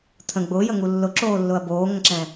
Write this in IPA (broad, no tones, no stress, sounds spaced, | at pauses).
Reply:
t̪ʰ ə̃ ɡ͡b ʊː j ə ŋ u lː ʊ ǁ oː lː ʊ ɐ̯ b oː ŋ ə̃ ǁ ɛ̃